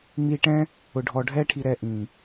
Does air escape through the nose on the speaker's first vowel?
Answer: no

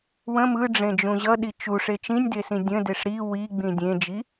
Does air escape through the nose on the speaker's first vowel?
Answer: yes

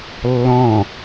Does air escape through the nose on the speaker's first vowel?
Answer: yes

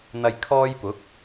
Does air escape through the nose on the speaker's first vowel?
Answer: no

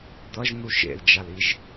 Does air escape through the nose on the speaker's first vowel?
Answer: no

